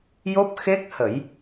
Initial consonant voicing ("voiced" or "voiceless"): voiced